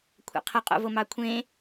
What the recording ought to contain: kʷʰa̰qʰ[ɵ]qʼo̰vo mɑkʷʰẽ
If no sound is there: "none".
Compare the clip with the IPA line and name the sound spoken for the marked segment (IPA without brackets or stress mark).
ə